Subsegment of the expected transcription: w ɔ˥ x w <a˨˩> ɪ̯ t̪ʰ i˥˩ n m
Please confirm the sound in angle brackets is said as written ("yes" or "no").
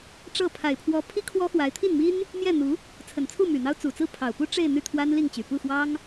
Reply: no